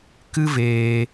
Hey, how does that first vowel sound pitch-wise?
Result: high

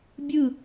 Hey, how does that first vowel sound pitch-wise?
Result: falling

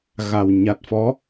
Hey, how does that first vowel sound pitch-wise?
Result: low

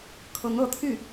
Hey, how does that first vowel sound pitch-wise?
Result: rising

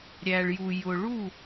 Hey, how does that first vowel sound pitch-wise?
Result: low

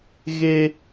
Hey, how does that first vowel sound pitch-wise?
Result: high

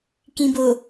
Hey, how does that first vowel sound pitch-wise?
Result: low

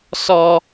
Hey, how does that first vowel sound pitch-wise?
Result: high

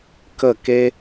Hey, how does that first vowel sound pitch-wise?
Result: falling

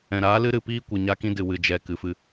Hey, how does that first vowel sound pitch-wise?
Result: low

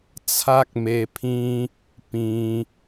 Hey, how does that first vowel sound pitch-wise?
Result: high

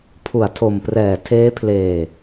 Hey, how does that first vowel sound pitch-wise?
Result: low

